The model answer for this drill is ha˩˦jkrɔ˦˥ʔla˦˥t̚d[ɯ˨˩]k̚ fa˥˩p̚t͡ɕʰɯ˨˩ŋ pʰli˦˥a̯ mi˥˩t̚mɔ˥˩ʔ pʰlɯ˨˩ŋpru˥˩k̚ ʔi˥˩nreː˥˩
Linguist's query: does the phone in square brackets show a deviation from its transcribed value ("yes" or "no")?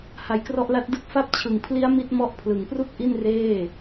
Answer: yes